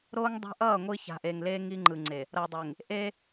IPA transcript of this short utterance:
ɾ oː˦ ŋ dˤ a̤˦ ʔ ʌː˦˨ ŋʷ i˦ ç a̤˨ ʔ eː˨ ŋ l eː˦ ŋ i˦ ŋ͡ǃ ɯ˨ ŋ͡ǀ e˨ | ɾ ʌː˨ dˤ e˨ ŋ | ʔ e˦

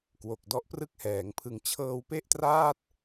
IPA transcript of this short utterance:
k w o˨˩ k̚ d ɔ˦˥ ʔ p r ɯ˥˩ k̚ h ɛː˩˦ ŋ pʰ ɯ˩˦ ŋ t͡ɕʰ ɤː˧ w p e˥˩ ʔ t r aː˥˩ t̚

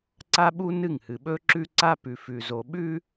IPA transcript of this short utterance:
ǀ a˦ ɓ u˦ n ɨ˦˨ ŋ h ɨ˨ ɓ ɵ˦ ǁ ʉ˦ ǀ a˦ p ʉ˨ f ʉ˨ z o˨ ɓ ʉ˦

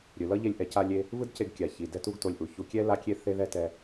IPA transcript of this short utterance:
ɾʲ ɯ˩ l ʌ˥ ʎ e˧ lʲ ʔ ɛ˩ c a˧ lʲ e˧ | v ɯ˥ d c e˧ ɡ kʲ a˩ ç i˩ d ɛ˥ t u˥ ɡ t o˧ lʲ ʔ u˩ ç u˧ kʲ ɛ˥ l a˥ kʲ e˥ θ e˥ ð ɛ˥ t ɛ˧

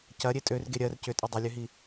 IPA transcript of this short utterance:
c ɐ ɾʲ e tʼ ø r ɡ e ɾʲ ɜ r c ʏ tʼ ʏ dˤ i lʲ ø ɦ i

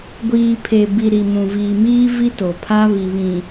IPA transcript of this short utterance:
ɡʷ iː˨ pʰ e˨ b i˨ ɾ i˨ m ũ˨ v iː˨ m iː˦ v i˦ t o˨ pʰ a˦ β i˨ β ĩ˨

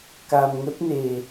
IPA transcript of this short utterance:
k a˧ m ŋ ə˦˥ t̚ n e˧

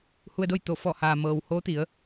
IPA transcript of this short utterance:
h u˧ ə̯ d o˥˨ j t̪ o˧˩ f ɔː˧˩ h aː˩ m ɤː˩ w h oː˧˥ t̪ i˩˧ ə̯

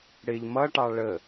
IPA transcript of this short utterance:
ɽ ɪ ʎ m ʌ ʈ ɑ ɭ ə

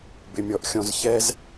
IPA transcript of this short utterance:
b ɪ mʲ ɔ ʔ xʲ ɔ̃ z ç ɛ z

